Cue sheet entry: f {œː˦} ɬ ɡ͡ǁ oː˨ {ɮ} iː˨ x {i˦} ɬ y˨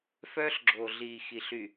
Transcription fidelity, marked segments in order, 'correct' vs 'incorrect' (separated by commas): correct, correct, incorrect